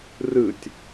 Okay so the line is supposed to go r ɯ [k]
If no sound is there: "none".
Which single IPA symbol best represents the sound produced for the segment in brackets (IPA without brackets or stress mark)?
tʲ